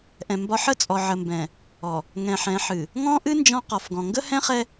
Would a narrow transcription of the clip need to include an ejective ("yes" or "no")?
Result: yes